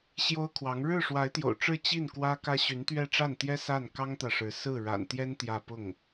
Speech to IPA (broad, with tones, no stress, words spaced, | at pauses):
ɕjo˥ʊ̯kʰwɑ˧˥ŋ ɻɻ̩˥˩ ʂwa˧˥ɪ̯t̪jo̰˨˩ʊ̯ʈ͡ʂɻ̩˥˧ t͡ɕi˥˩n kwä˥kä˥ ɕy˧˥nt̪ɥɛ˥˧ʈ͡ʂa˥˩nt̪jɛ˥ sa˥˩n kɑ˥ŋt̪ä˨ʂɻ̩˧˥ sɹ̩˥˩ɻa̰˨˩nt̪jɛ˥n t̪jä˥˧ pʊ˥˩ŋ